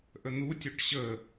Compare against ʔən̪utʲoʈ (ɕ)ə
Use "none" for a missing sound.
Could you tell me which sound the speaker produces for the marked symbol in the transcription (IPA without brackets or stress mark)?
ɕ